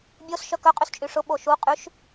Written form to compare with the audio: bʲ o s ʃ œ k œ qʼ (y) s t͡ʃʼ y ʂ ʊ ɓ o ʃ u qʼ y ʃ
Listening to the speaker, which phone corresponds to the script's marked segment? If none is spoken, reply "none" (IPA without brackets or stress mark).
y